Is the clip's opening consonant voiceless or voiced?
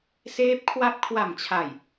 voiceless